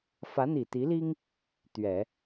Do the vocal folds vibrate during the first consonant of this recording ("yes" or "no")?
no